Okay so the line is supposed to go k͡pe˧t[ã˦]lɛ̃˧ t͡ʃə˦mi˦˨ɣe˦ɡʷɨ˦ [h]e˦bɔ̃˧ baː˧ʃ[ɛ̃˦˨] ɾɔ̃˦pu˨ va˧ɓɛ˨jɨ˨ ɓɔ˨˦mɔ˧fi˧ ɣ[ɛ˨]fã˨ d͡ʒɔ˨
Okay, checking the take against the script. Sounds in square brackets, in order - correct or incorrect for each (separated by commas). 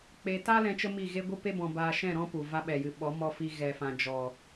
incorrect, incorrect, correct, correct